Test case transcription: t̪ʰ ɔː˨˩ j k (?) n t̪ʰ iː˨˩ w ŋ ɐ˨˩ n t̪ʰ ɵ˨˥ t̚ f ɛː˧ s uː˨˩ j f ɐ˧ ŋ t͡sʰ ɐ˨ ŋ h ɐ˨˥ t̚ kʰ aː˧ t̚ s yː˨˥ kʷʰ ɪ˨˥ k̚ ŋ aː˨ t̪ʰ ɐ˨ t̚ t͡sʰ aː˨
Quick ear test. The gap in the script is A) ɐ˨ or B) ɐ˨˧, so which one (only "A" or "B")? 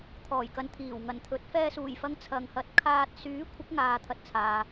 A